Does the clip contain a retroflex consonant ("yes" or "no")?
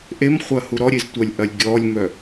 no